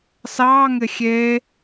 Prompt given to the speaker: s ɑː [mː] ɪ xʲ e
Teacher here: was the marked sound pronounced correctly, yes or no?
no